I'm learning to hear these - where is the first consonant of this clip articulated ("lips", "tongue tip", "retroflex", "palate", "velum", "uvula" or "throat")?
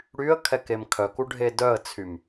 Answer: retroflex